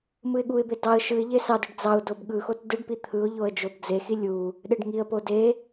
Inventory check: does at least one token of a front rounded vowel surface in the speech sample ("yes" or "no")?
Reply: yes